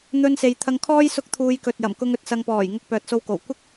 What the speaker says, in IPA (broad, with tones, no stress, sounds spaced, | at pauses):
n̪ ɵ˧ n s e˨ j t̪ʰ ɐ˧ ŋ kʰ ɔː˥ j s ʊ˥ k̚ t̪ʰ uː˧ j k ɵ˨ t̚ j ɐ˨˩ m k ʊ˧ ŋ ɵ˨ t̚ s ɐ˧ ŋ p ɔː˨˩ j ŋ ʊ˧ k̚ p œː˨ t̚ s o˧ w k o˨˩ w kʷ ɪ˥ k̚